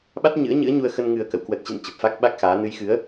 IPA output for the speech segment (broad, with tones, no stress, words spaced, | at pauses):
ɓa˦˥t̚ɲɨ̰˧˥ə̯ɲɨ̰˧˥ə̯ ɲu˧ə̯xə˧n ŋɨ˨˩ə̯kə̰˧˨w kwə˨˩t̚t͡ɕɨ̰˧˨n t͡ɕə˨˩p̚fa˦˥k̚ɓa˦˥k̚xaː˨˦ nɨ˨˦jxɨ˨˦ə̯